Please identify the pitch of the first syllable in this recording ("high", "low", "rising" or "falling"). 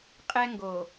high